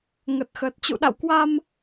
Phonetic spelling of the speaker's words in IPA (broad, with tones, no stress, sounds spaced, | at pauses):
ŋ ə˨˩ t̚ x əː˨˩ t̚ t͡ɕ ṵ˧˨ ɗ a̰˧˨ w k w a˧ m